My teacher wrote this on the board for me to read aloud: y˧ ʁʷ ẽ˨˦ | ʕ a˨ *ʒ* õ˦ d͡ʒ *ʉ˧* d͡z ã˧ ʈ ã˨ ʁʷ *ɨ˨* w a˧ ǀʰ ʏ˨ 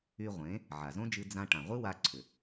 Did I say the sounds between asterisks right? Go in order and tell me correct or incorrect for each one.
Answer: incorrect: z, incorrect: ɨ˧, incorrect: ɨ˦

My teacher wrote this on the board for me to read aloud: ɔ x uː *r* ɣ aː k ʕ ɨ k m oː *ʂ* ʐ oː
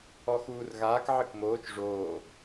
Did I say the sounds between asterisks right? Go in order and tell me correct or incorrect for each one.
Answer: correct, incorrect: t͡ʃ

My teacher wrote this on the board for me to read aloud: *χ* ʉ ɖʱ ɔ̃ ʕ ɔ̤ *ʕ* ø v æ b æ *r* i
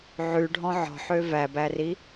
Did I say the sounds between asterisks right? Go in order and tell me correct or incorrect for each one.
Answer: incorrect: ʕ, incorrect: ħ, correct

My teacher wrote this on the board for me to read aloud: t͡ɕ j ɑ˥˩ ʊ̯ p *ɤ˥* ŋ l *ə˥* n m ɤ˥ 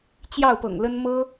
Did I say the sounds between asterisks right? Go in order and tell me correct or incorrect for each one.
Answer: incorrect: ɤ̰˨˩, correct

